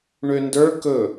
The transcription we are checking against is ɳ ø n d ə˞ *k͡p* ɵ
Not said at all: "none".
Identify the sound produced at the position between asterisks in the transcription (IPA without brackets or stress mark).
k